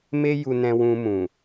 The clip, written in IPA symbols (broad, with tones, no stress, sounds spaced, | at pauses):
m e˦ j u˧ n ɛ̃˧ w ũ˧ m ũ˨